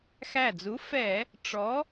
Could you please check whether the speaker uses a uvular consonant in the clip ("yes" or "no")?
no